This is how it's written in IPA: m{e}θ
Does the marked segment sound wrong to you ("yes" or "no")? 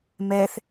yes